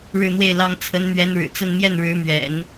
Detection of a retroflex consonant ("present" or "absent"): present